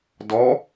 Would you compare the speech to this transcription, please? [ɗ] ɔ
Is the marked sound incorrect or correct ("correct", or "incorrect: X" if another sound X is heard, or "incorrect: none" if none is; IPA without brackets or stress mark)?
incorrect: d